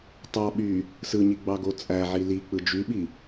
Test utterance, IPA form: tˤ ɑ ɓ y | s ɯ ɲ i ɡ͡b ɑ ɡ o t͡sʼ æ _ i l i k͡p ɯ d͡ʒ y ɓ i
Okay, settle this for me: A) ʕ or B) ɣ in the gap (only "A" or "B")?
A